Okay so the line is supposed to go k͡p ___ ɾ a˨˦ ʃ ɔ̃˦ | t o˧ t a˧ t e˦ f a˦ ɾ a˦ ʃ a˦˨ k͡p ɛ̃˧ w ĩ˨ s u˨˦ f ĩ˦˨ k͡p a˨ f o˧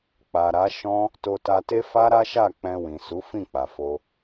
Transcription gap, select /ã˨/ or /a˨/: a˨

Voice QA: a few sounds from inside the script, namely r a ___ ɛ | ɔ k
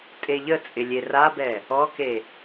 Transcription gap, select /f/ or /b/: b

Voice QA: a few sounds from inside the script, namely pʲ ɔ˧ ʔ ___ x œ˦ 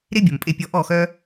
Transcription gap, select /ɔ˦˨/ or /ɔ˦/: ɔ˦˨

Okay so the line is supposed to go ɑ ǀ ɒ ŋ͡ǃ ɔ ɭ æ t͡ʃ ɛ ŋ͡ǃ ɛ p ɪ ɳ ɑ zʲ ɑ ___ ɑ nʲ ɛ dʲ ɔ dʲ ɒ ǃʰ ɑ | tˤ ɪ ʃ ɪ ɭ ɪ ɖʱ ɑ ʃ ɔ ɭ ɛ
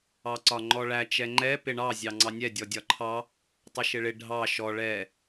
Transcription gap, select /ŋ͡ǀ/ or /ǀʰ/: ŋ͡ǀ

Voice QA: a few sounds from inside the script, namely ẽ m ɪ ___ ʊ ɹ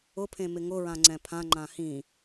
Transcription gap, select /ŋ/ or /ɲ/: ŋ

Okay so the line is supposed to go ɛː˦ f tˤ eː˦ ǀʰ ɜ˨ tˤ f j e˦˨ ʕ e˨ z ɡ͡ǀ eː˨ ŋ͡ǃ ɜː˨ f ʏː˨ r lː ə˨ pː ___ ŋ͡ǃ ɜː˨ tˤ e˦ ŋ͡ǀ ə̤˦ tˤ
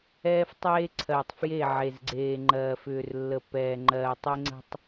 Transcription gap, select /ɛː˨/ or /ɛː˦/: ɛː˨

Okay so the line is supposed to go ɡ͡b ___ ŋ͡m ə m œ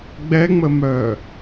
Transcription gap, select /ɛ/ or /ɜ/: ɛ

